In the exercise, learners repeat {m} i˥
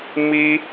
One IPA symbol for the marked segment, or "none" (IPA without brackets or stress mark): m